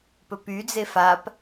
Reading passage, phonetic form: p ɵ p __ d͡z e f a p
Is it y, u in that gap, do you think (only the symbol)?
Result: y